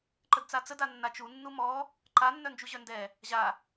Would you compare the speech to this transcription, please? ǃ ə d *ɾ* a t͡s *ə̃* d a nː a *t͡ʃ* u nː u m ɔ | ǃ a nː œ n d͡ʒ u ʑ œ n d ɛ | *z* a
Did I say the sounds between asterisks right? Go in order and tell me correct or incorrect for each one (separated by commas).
incorrect, incorrect, correct, incorrect